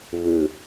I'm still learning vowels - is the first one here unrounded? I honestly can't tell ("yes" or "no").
yes